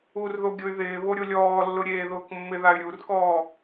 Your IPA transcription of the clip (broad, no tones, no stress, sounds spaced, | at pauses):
u r ð o ɡʲ ʊ y̯ ð ɪː β o ɾʲ o lʲ ɔː lː ʊ ɾʲ eː ð ʊː k mː ɪ ð a y̯ ɾʲ u r k ɔː